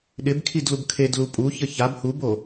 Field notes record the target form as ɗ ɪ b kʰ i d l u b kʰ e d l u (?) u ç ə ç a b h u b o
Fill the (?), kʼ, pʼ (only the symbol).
pʼ